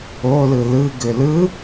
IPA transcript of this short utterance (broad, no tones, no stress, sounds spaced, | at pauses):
o l ɯ l ɯ ɡ ʏ l ɯ